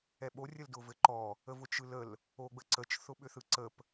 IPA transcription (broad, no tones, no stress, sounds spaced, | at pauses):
ɛ ɓ o rʲ ə l d ʊ v ɘ ǃ ɔ | ə v ʊ t͡ʃ ɯ l ə l | o ɡ͡b ə ǀ ə t͡ʃ θ ʊ ɓ ʏ θ ɯ ǀ ə p